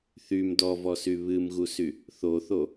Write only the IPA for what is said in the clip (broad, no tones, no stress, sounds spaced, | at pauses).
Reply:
θ y m d ɔ v ɔ s y β ɨ m ɣ u s y | θ o θ o